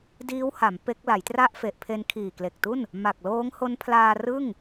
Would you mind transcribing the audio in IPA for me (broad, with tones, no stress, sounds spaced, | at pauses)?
d iː˦˥ w h a˩˦ m p e˦˥ k̚ l a˩˦ j t r a˥˩ ʔ f e˨˩ ʔ pʰ e˧ n kʰ iː˨˩ k l e˨˩ k̚ t u˥˩ n | m a˨˩ k̚ l oː˦˥ ŋ h o˦˥ n pʰ l aː˧ r ɯ˥˩ ŋ